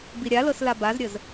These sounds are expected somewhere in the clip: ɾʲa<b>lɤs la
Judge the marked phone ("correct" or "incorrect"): incorrect